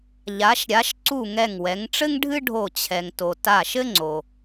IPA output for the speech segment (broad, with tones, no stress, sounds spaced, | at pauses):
ʎ a˩˧ ʃ ɾʲ a˩˧ ʃ ǀ u˧˩ ŋ ɛ˧˩ ŋ w ɛ˩˧ ŋ ʈ͡ʂ ɘ˥ ŋ ɖʱ ɨ˥ ɖʱ o˧˩ t͡ɕʰ ɛ˩ ŋ t o˩ t a˧˩ ʃ ɘ˥ ŋ͡ǀ o˩